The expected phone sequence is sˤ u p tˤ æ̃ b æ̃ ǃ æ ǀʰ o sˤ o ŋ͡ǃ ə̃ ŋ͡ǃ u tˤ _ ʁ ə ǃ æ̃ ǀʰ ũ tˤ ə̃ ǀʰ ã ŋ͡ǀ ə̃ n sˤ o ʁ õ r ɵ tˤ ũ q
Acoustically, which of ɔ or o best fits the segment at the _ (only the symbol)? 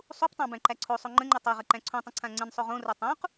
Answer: o